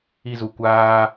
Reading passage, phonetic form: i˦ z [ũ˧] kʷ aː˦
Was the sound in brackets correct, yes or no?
no